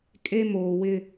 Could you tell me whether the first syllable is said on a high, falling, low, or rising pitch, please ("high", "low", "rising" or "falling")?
high